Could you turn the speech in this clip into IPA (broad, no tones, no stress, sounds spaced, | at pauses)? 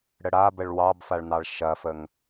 ɽ ə ɽ a b ə ɭ w ɑ b f a ɭ n̪ ɑ ɭ ʃ ɐ f ə ŋ